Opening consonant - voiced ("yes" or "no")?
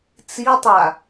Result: no